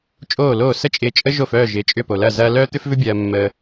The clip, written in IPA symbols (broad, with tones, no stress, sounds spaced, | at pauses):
t͡ʃʼ oː˥˩ l oː˥˩ s ə˥ t͡ʃʼ ɪː˧ t͡ʃʼ ə˥ ʒ o˥˩ f œː˥˩ ʒ ɪː˩˥ t͡ʃʼ ʏ˥˩ p o˩ l ɐ˥˩ z ɐː˥ l œː˥ t̪ ʏ˥ f v ʏ˥ bʲ ɐː˧ mː əː˧